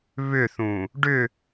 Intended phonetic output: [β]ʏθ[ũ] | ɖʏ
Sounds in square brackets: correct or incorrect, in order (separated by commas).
correct, correct